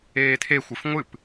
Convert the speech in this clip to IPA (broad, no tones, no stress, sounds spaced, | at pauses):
eː tʰ e xʷ ɨ f ŋʷ ɨ p